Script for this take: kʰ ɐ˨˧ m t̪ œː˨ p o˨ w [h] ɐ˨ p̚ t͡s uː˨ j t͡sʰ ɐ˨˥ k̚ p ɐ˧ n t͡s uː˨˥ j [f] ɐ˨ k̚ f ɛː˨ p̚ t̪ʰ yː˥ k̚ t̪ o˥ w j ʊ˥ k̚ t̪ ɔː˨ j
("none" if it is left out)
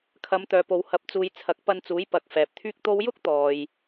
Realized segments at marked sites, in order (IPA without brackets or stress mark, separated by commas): h, p